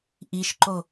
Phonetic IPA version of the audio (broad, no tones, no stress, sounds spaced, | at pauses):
ʔ i ʃ ǃ o